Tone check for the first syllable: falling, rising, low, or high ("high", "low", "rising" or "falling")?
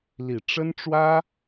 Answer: low